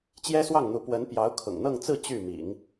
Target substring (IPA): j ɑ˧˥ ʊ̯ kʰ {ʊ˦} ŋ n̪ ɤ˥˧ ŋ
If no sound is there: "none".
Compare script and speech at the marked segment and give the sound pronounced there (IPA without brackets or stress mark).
ʊ̰˨˩